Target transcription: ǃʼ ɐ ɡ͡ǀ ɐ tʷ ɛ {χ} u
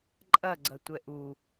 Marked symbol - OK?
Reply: no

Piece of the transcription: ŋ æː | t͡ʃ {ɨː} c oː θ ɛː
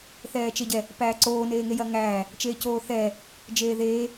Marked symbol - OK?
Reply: no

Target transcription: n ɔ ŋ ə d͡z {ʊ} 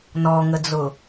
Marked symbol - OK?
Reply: yes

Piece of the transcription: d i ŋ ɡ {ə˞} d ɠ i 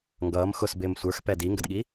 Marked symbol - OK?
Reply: no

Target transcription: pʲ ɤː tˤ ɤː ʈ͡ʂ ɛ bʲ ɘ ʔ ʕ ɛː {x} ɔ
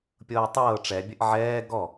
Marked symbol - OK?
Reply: no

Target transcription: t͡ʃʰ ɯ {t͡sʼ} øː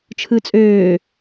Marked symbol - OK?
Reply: yes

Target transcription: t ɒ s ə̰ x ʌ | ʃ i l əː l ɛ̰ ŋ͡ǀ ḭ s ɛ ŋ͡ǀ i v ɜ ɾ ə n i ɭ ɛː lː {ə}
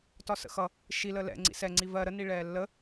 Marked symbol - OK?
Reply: yes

